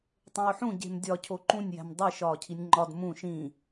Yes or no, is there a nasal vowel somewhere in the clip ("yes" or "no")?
yes